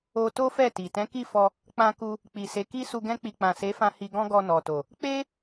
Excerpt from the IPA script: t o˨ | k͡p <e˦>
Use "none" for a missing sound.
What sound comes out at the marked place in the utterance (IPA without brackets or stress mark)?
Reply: e˦